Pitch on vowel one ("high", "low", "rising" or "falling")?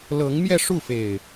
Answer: rising